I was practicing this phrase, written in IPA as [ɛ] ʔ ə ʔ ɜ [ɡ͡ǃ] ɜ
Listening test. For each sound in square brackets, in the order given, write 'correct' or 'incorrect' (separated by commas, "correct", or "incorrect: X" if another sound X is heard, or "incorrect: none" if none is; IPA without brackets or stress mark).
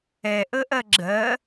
correct, incorrect: ɡ͡ǁ